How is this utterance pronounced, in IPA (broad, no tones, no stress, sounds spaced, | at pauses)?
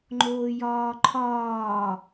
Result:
ŋ͡ǃ oː j ɒː ǃʰ ɒː